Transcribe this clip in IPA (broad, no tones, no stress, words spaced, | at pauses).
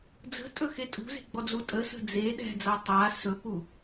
d͡zə̤tʼɵxe tʼṳze̤ɡ͡bɔd͡zu tʼəsə̤ d͡ze ɗɛ̤d͡za tˤa sɵpu